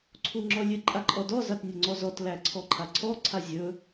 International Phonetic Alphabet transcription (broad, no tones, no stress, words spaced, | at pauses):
ǀʰuŋ͡ǁɔlʲɨ ǃʼaǃʼɔdɔ zatnʲɵŋ͡ǀɔzɔt læǀʰɔǃʰaǀʰɔ ǀʰazʲɵ